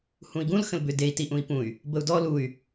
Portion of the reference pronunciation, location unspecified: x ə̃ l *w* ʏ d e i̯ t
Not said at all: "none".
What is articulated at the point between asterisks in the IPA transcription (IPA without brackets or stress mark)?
b